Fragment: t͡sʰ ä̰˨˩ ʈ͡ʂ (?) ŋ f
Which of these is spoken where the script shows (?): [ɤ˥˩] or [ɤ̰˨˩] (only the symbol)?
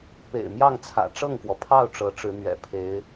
ɤ˥˩